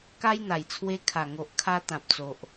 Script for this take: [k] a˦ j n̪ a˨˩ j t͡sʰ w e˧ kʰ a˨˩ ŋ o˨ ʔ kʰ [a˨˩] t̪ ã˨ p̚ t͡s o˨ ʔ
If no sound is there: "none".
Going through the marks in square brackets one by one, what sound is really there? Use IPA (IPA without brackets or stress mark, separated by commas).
k, a˧